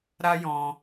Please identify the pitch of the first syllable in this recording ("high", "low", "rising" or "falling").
high